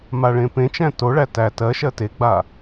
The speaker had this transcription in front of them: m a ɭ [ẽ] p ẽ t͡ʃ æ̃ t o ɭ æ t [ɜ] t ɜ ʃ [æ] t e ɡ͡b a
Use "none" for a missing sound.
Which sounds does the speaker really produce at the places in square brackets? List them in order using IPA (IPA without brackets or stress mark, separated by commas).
ẽ, æ, ɜ